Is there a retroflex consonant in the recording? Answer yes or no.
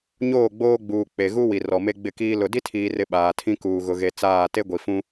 no